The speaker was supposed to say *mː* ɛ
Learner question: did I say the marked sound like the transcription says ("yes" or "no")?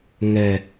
no